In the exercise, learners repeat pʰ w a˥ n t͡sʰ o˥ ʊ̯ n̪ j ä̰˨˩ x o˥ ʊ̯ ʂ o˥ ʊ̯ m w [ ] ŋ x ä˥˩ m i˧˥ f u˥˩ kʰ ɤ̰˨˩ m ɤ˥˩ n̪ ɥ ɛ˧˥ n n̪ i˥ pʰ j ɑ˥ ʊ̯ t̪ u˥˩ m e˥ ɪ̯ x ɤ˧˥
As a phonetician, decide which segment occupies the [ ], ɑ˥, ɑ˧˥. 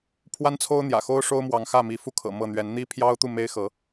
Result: ɑ˧˥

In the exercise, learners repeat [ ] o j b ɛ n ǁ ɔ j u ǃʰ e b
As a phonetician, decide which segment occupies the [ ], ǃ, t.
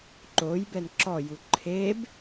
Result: ǃ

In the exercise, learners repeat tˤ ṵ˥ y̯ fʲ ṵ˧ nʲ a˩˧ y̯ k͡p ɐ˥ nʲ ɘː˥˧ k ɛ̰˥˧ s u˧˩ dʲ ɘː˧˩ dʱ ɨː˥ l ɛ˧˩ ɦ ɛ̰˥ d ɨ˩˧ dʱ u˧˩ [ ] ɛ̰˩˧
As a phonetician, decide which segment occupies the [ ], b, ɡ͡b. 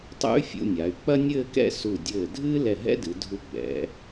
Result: ɡ͡b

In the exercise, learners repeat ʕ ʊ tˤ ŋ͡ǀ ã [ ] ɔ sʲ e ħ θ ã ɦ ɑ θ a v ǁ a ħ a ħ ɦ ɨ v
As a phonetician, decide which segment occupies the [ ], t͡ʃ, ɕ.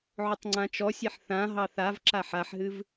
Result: t͡ʃ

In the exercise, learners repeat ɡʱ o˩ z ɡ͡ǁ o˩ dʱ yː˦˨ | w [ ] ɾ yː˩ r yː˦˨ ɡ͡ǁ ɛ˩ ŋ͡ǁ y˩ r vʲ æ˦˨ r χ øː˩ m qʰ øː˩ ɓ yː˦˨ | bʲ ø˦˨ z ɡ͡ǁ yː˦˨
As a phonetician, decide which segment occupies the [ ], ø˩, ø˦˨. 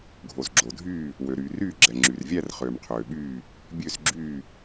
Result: ø˩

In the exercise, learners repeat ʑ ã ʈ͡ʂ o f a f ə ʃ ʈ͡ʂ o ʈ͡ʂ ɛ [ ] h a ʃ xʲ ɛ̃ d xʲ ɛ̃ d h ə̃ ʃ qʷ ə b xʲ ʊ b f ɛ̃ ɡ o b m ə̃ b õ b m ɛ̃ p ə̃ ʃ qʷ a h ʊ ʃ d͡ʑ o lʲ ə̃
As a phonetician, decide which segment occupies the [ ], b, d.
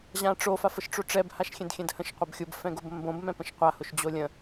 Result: b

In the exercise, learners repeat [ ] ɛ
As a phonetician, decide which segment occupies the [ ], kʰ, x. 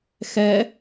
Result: x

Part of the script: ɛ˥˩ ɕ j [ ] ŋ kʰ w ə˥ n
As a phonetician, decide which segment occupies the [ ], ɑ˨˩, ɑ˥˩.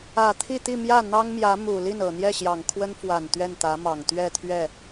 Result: ɑ˨˩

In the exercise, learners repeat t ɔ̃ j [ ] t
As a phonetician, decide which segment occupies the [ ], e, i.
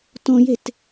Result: e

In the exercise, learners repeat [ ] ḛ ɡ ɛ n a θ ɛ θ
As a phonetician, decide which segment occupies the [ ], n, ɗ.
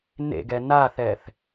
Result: n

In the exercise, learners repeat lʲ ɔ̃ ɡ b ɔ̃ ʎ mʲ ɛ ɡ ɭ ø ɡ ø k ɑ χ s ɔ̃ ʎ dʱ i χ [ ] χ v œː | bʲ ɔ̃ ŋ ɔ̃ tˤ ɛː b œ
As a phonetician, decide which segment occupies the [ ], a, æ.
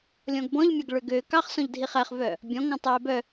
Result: æ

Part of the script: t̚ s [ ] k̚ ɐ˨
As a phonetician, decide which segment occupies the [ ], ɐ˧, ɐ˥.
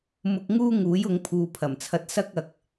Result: ɐ˥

